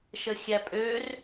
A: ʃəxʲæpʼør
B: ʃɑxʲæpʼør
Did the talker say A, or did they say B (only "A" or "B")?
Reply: A